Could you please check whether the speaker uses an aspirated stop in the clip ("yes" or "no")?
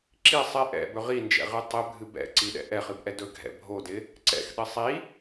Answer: no